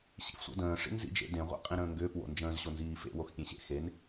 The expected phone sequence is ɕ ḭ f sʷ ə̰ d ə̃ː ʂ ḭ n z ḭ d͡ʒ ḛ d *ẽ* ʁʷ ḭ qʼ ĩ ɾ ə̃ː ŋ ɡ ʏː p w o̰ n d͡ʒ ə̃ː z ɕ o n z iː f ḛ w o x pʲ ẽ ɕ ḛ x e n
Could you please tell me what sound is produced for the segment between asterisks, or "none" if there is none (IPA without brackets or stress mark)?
ẽ